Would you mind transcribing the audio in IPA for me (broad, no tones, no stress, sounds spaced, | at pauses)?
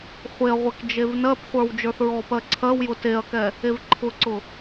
χʷ e ɐ̯ ʁʷ ɛ k d͡ʒ e v n ɜ p χʷ ə˞ w d͡ʒ ə˞ θ ɹ ɔ p ɜ ǀʰ ɜ w j ʊ t e ɐ̯ k ɛ | e v ǃʰ ʊ ǀ ʊ